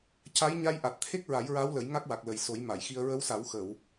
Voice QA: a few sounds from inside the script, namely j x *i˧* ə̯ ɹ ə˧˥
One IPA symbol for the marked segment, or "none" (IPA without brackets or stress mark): i˧